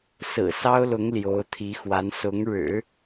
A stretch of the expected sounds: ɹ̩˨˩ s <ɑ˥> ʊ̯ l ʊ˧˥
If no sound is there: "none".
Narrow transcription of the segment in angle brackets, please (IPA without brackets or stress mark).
ɑ˥